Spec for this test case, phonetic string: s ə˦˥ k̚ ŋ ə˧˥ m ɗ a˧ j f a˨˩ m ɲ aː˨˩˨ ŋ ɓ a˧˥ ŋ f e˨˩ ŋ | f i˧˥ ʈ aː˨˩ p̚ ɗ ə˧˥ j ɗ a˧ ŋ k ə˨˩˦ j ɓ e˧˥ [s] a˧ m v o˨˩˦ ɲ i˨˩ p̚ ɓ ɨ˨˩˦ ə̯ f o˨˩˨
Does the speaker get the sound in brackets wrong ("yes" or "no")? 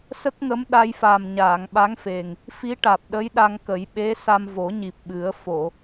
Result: no